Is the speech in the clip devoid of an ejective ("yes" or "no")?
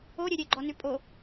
no